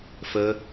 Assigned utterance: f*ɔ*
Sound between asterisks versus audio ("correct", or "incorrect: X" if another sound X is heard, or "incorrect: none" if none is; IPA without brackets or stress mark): incorrect: ə